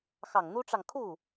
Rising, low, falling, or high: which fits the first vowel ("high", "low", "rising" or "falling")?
low